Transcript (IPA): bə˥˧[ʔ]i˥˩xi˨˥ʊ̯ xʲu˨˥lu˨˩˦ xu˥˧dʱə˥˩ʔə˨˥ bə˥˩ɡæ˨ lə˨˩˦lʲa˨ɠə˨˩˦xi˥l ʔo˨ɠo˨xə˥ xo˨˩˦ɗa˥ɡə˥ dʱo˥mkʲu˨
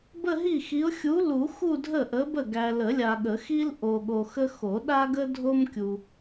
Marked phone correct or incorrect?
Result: incorrect